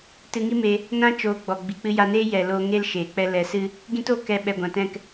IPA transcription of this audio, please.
t ɨ˧ ŋ i˦ m e˧ | n ã˦ t͡ʃ oː˧ ɡ͡b ɔ˨ ɡ͡b i˨ k͡p ɨ˧ j a˧ n eː˦ j ɛ˨ l oː˧ ŋ e˦ l ʃ eː˨ k͡p ɛ˦ l ɛ˨ s ɨ˦ | ɡ ĩ˦ t o˦˨ k ɛ˧ ɓ ɛ˨ ɡʷ ã˨ t ɛ̃˦˨ k

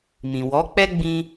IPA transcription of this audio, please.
m ĩ˨ w ɔ˨˦ k͡p ɛ˦ ɡ͡b ĩ˦

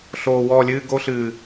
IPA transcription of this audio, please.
ɬ oː˨˩ w ɔː˦˨ lʲ ɨː˧˥˧ ɡ o˦˥ ɬ ɨː˨˩

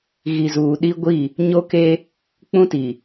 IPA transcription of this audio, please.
ɣ i˨ z uː˨ ɗ i˦ ɡʷ i˦˨ | ɲ o˦ k e˦ | k͡p ũ˦ t i˨

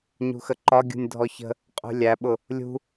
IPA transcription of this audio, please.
ɲ ṳ x ə ǃ ɒ ɡʲ ṳ nʲ dʱ ɔ ç ə̤ | qʼ ṳ lʲ æ ɓ ʊ | lʲ ṳ

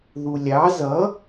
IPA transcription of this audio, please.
ð u lʲ ɑ z ʌ

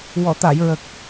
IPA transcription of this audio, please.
w ɔ˨˩˨ t̪ a˨˩˨ j ɹ ə˨˩ k̚

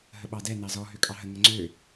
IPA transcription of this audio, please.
ɦ ə ɓ ɑ d ɛ n ɑ z ɔ ɦ ø kʼ ɑ ɦ ə ŋ ə ŋ͡ǀ ø

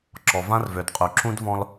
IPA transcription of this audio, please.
ǁ ɔ˨ v ã˦ r v ø˨ d qʼ y˨ ǁ ũ˦ d v ɔ̃˦ l

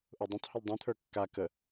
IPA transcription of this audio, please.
ʔ ʊ dˤ ə̃ tˤ h ɘ l dˤ ĩ t̪ʰ ə˞ kː a k ə

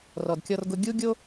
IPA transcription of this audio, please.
r ɔ˩ d kʲ ɔ˧ r ɡ ʊ˧ ɡʲ u˥ ɡʲ o˥

